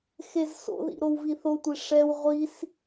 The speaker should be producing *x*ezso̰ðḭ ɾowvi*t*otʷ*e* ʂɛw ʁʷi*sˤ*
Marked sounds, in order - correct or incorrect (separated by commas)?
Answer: correct, incorrect, correct, incorrect